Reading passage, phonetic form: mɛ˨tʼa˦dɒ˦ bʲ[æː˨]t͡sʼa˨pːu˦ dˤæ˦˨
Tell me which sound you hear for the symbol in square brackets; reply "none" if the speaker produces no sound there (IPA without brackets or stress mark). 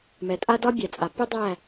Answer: æ˨